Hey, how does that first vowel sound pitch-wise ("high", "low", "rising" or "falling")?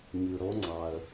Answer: low